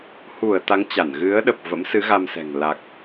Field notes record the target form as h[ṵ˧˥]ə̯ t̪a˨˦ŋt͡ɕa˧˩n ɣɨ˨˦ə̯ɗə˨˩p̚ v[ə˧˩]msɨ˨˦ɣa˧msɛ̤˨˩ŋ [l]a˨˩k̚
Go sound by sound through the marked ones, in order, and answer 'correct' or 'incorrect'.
incorrect, incorrect, correct

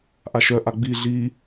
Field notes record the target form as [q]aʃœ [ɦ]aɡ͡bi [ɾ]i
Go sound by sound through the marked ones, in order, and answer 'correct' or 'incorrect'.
incorrect, incorrect, incorrect

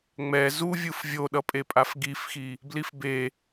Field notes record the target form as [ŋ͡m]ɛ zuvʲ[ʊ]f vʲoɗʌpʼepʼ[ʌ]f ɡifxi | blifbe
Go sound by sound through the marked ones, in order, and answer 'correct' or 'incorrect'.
correct, incorrect, incorrect

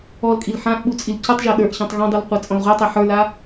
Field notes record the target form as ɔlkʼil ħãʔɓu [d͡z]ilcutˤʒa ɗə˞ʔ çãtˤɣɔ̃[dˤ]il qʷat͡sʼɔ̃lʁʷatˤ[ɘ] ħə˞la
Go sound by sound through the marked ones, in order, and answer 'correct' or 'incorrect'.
incorrect, correct, incorrect

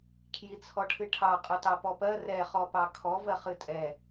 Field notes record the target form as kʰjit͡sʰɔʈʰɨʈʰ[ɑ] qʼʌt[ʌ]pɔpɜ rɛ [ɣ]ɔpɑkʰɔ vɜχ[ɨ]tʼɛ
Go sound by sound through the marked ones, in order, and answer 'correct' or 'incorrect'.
correct, incorrect, incorrect, correct

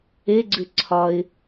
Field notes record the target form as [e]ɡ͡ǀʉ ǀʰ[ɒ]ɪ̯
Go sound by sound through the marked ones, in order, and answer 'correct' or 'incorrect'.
correct, correct

